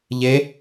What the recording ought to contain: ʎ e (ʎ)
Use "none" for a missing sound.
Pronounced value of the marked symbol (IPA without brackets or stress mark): none